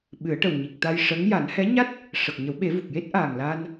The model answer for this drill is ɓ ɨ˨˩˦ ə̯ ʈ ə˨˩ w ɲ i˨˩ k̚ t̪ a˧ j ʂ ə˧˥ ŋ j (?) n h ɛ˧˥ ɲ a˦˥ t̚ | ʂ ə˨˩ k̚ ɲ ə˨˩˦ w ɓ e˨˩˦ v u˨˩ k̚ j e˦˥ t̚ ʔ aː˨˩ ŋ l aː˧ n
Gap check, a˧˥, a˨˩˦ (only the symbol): a˨˩˦